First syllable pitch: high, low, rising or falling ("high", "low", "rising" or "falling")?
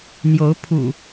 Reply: rising